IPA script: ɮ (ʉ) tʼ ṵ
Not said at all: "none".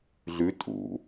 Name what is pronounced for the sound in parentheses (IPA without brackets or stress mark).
ʉ